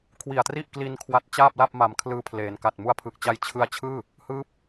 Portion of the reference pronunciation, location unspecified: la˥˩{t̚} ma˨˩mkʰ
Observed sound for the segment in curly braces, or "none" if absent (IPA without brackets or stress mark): p̚